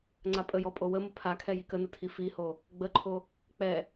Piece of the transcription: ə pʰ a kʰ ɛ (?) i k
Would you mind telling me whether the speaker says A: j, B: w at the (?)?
A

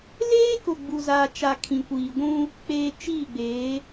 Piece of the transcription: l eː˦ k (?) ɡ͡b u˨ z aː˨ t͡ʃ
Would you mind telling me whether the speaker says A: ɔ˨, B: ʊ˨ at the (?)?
B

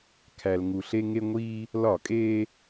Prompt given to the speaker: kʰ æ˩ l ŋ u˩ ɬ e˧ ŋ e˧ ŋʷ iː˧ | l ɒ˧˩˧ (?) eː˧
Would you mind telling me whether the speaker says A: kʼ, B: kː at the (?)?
A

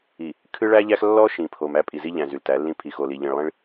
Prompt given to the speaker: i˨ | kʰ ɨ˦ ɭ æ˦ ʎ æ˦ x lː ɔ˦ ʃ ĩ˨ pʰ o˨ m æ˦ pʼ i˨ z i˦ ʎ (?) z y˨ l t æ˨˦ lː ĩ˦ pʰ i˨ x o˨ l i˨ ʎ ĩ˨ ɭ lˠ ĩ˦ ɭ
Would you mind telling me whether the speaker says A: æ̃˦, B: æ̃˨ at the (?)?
B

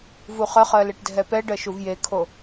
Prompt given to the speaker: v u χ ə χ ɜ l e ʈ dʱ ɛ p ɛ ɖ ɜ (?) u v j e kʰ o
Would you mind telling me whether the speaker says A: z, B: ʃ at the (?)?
B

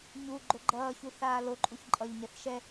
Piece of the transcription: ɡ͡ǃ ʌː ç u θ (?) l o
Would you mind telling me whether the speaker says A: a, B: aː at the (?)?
B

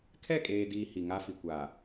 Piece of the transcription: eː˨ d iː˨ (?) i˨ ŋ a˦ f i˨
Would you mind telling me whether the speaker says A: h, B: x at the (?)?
A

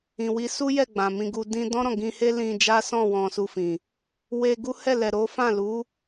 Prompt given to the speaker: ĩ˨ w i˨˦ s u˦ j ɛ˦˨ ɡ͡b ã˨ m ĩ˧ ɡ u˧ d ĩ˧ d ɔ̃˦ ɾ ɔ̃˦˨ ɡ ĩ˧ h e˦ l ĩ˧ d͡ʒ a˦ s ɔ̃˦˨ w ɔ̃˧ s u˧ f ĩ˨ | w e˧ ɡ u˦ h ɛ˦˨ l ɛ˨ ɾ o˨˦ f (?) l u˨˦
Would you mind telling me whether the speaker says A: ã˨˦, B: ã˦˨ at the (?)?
B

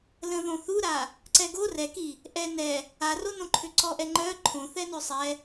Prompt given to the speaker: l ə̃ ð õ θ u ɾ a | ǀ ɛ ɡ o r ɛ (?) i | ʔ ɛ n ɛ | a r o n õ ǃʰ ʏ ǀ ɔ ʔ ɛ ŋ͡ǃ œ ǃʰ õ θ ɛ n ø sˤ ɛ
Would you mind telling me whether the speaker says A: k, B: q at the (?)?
A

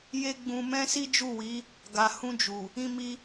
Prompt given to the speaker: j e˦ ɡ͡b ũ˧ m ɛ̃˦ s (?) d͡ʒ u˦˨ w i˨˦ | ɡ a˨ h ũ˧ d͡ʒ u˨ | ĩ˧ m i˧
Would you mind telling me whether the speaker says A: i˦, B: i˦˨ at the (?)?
A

